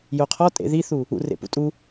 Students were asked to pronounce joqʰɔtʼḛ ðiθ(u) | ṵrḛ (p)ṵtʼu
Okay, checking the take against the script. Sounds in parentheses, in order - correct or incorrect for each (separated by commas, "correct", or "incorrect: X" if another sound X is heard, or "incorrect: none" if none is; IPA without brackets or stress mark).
correct, correct